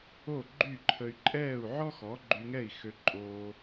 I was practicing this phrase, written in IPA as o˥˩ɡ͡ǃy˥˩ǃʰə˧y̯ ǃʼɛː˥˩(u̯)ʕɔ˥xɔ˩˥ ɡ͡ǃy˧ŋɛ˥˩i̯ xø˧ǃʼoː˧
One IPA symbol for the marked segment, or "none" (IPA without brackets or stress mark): u̯